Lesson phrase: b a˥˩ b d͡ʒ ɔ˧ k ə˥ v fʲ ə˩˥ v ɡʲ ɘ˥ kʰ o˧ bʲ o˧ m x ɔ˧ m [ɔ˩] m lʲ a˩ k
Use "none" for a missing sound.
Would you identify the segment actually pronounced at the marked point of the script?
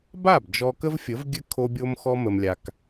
ə˩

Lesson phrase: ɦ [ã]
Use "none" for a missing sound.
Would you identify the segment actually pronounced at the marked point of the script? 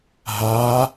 a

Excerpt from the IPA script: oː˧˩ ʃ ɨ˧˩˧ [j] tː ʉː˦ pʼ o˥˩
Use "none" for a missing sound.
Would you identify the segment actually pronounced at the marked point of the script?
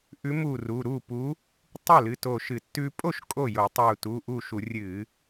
none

